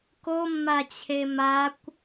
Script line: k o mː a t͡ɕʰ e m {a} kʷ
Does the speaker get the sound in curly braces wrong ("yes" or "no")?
no